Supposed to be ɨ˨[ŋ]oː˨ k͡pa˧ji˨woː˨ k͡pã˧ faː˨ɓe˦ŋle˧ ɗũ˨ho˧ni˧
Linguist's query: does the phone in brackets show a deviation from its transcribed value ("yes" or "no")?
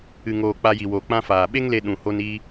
no